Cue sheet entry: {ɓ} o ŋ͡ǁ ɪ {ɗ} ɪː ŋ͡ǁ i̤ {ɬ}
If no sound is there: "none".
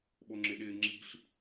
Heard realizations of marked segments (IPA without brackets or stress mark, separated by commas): ɓ, ɗ, ɬ